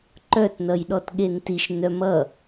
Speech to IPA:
ǃ œ t n ʌ j ɗ ɔ t ɠ e n t i ʃ n œ m ʌ

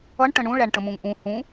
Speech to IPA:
ʌ ɳ ʈ ə̃ ɳ ũ ɭ æ ɳ ʈ ə̃ m ũ ŋ ʔ ũ h ũ

